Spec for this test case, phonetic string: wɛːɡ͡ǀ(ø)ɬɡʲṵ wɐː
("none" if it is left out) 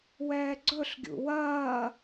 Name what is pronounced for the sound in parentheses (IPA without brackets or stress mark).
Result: ɵ